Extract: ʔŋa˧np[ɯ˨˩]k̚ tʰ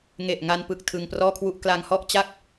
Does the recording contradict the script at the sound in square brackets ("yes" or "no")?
no